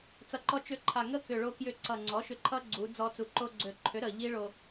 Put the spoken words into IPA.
t͡sʌ˧ǃɔ˦˥ t͡ʃø˧ǃʰa˨˩ŋə˦˥ kʏ˨˩ɭo˧kjʏ˧ ǀʌ˨˩ ŋ͡ǀɔ˩˥ʃʏ˧ǃʰʌ˦˥ ɡ͡ǀu˩˧d͡zɔ˧t͡su˩˧ ǃo˧ɡ͡ǀø˨˩ǃʰʏ˩˥ ɾə˨˩ ʎi˦˥ɭo˧

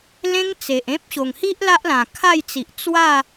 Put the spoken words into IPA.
lẽ˦ŋt͡se˨ʔẽ˦p̚ ɕo˨˩ŋhi˦ʔ la˦ʔlã˨˩kʰa˥˧jt͡si˨ʔ t͡swa˥˧

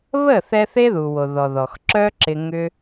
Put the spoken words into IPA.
βə˦˨θɛ˧ θe˦ðu˨wo˨ ðɔ˨ðɔ˨xǁœ˦ ǁɪ˧ŋʏ˦

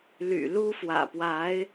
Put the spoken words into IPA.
ly̰˨˩lu˥ fwä̰˨˩pwa˧˥ɪ̯

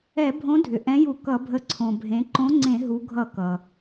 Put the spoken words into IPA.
ɛ˧˩˧bʱõ˨˥ dʱʏ˩ ʔɛ̃˨˥ju˧˩˧ kʌ˧˩˧bʱə˨˥ ǀʰõ˩bʱẽ˩˧ ǃõ˨˥ ŋ͡ǀẽ˧˩˧ ɦu˩˧ɡʱʌ˧˩˧ kʌ˩

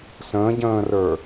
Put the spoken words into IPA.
sə̃ːɟə̃ːrə˞

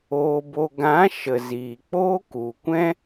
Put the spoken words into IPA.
oː˧bo˧ ɡã˨˦ ʃə˨ziː˨k͡poː˦ ku˨kʷɛ̃˦

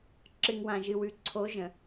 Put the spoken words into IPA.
ǁɨ˨ŋwã˨ʒɨ˨wʉ˨ ǀʰo˨˦ʒə̃˨

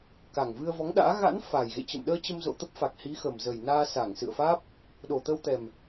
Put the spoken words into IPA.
ka˨˩ŋvɨ˧ə̯vɔ˨˦ŋɗa̰ː˧˥ ɣa̰˧˥n fa˨˩jɣḛ˧˨t͡ɕə̰˧˨mɗəː˧ t͡ɕə˧mzo̰˧˨t̪ə˦˥p̚fa˨˩k̚ hi˨˦xə˨˩mzə˨˩jnaː˧ sa˧˩ŋsɨ̰˧˨ə̯faː˦˥p̚ | ɗo˨˩t̪ə˧wt̪ɛ˨˩m

